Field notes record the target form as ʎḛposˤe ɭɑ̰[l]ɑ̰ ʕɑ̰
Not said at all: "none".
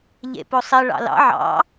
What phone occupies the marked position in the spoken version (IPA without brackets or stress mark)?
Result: l